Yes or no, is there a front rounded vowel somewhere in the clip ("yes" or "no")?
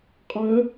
yes